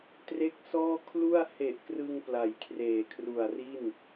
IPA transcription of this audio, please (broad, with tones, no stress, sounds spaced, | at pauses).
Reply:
t r e˦˥ k̚ s ɔː˥˩ kʰ l u˥˩ a̯ h e˨˩ ʔ k r ɯ˧ ŋ p l a˨˩ j kʰ r eː˨˩ kʰ r u˨˩ a̯ r i˥˩ n